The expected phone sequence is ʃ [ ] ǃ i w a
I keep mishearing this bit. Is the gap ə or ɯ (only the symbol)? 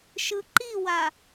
ɯ